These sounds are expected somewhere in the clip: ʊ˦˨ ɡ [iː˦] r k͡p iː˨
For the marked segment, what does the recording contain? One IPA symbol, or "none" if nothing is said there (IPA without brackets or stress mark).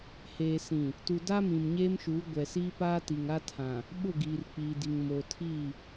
iː˨